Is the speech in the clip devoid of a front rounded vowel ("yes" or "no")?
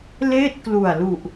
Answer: yes